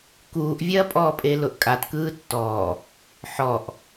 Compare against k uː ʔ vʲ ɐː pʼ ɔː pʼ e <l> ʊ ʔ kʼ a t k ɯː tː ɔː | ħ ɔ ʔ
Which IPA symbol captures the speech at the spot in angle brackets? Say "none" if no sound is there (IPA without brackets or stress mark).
l